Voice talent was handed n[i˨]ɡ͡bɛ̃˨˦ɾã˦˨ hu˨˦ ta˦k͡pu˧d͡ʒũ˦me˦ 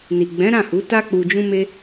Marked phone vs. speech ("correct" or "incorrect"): correct